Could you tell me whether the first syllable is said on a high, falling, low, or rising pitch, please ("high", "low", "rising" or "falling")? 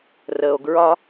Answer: low